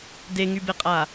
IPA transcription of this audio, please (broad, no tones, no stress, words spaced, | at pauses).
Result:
deŋybeqʼa